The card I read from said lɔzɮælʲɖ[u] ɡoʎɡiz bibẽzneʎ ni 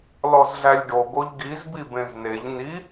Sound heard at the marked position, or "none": o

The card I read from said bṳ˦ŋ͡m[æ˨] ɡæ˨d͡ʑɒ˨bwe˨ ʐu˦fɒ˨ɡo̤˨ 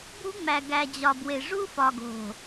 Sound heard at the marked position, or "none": æ˨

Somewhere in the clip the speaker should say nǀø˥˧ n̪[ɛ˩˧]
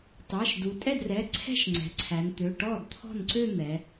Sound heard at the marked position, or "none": ɛ˩˧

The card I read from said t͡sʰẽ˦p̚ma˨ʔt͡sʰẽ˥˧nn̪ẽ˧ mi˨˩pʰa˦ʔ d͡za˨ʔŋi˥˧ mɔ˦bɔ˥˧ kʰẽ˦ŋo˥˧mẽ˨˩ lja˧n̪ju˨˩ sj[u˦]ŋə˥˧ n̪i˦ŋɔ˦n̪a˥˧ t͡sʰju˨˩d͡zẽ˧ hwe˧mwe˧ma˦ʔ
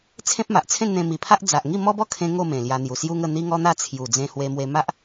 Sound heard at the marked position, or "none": u˦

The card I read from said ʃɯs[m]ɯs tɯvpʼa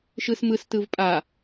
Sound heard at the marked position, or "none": m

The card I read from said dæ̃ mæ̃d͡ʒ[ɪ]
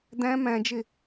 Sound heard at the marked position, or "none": ɪ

